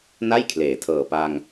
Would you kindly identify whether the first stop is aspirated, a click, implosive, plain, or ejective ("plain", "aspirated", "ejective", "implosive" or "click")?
aspirated